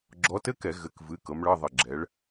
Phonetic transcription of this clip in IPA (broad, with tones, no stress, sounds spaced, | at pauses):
ɡ͡ǁ ɔ˨˦ t ɘ˧˥˧ k ɛ˧˩˧ ɣ ɘ˩˧˩ k v ɨ˩˧˩ k ɤ˨˦ m ɭ ɤ˧˥˧ ðˤ ɘ˧˩ ɡ͡ǁ ɛ˨˦ ɭ